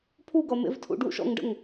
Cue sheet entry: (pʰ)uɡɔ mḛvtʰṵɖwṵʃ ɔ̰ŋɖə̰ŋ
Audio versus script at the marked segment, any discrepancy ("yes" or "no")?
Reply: no